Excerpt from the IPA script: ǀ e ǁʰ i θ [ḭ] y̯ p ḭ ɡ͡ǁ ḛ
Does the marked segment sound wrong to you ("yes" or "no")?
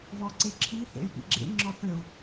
yes